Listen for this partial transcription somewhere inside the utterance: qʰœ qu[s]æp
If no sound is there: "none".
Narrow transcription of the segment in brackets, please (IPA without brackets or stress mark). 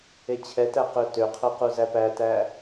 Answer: z